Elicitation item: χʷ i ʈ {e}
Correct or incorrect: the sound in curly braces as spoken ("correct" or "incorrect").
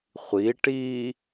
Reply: incorrect